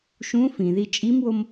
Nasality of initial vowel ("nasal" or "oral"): nasal